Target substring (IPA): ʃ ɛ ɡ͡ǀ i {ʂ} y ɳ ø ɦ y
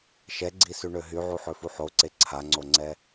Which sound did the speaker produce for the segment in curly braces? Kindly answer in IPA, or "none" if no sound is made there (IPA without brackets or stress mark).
s